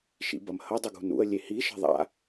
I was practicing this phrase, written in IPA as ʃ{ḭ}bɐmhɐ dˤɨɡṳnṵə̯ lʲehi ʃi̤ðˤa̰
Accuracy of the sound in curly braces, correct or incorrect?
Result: correct